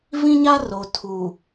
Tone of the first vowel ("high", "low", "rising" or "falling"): high